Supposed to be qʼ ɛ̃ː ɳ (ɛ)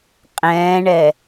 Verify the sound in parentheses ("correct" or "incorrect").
correct